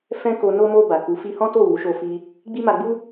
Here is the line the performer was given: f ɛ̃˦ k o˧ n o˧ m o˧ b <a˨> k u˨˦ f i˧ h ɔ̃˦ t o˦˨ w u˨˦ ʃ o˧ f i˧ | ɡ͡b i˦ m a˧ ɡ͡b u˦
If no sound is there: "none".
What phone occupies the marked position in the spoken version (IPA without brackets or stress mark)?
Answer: a˨